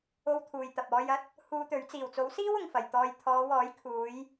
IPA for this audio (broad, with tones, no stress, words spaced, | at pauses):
o˧wt̪ʰuː˨jt̪ɐ˨p̚ɔː˧j ɐ˧t̚ | huː˧t̪ɵ˨˥ɥ t͡siː˨˩wt͡so˨˥wsiː˥w ʊ˨ŋfɐ˨jt̪ɔː˧j t̪ʰɔː˨˧wɔː˨˥jkʰuː˨˧j